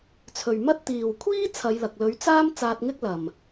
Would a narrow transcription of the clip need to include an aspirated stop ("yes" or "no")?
yes